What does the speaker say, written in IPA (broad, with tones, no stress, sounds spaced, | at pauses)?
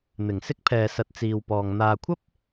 n̪ ɪ˨˩ ŋ s ɪ˥ k̚ pʰ ɛː˨ s ɐ˨ t̚ t͡s iː˨ w p ɔː˨ ŋ n̪ aː˨ kʷʰ ɐ˥ p̚